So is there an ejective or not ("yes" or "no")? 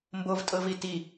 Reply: yes